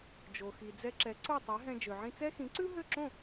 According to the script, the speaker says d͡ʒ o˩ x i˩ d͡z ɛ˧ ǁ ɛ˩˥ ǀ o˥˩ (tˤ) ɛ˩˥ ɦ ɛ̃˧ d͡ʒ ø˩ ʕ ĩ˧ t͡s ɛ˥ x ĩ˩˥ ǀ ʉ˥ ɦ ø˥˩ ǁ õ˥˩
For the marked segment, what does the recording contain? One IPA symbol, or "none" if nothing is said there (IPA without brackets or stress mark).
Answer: tˤ